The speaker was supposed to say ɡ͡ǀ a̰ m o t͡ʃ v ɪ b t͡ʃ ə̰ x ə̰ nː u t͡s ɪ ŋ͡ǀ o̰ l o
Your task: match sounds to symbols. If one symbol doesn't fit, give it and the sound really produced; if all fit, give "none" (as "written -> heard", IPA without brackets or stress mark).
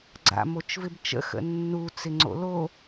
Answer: none